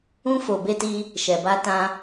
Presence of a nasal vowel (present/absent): present